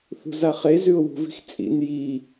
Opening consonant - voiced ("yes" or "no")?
no